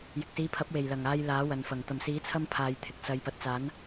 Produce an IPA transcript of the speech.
j ɪ˨ k̚ s iː˨˧ pʰ ɐ˨˥ p̚ w e˨˩ j l ɐ˨˩ ŋ aː˧ j l aː˨˥ w ɐ˨ n f ɐ˨˩ ŋ t̪ ɐ˨˩ m s iː˨˥ t͡sʰ ɐ˧ m pʰ aː˨ j t̪ʰ ɪ˨ k̚ s ɐ˨ j p ɐ˨ t̚ t͡s aː˨˥ n

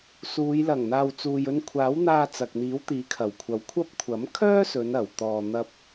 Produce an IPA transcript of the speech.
s uː˨˧ j l ɐ˨˩ ŋ n̪ aː˨ w t͡s uː˨ j ɵ˧ n kʷʰ aː˨˥ w n̪ aː˧ t͡s ɐ˨ k̚ n̪ iː˨˥ w t̪ iː˨˥ kʰ ɐ˨˩ w kʷʰ ɐ˨˧ w kʷʰ ɐ˥ p̚ kʷʰ ɐ˨˥ m kʰ œː˥ s ɵ˨˧ n ɐ˨˩ w t̪ ɔː˧ n̪ ɐ˥ p̚

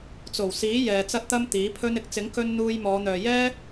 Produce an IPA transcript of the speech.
t͡s o˨˩ w s iː˨˥ j ɛː˨ t͡s ɐ˥ t̚ t̪ ɐ˥ m t̪ iː˨˥ pʰ ɵ˥ n ɪ˥ k̚ t͡s ɪ˨˥ ŋ k ɵ˧ n n̪ uː˧ j m ɔː˨˧ n̪ œː˨ j ɛː˥

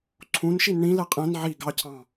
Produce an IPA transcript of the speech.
ǀʰ ũ n ʃ i n ɳ ĩ l ɛ qʼ ɛ̃ n ʕ i ɡ ɑ cʰ ɑ̃

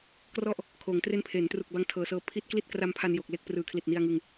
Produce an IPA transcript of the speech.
k r ɔ˥˩ ʔ | kʰ oː˩˦ ŋ t r e˦˥ n pʰ e˩˦ n t r u˨˩ k̚ b a˦˥ ŋ tʰ ɤː˨˩ s ɤː˧ pʰ i˦˥ t̚ k l i˥˩ t̚ k r a˧ m pʰ a˧ n j o˨˩ k̚ l e˥˩ k̚ p r ɯː˨˩ kʰ l i˨˩ t̚ n i˧ a̯ ŋ ɯ˧ ŋ

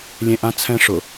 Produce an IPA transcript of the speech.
lʲ ẽ ʔ ã t͡sʰ ɛ̃ ʂ ʊ

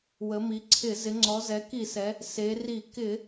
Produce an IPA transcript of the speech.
w ə˩˧ m i˩˧ ǀʰ ɪ˧˩˧ z ɪ˩˧ ŋ͡ǀ ɔ˩˧ z ɛ˩˧ k i˧˩˧ s ɛ˩˧ | s e˩˧ r i˧˩˧ k ɪ˧˩˧

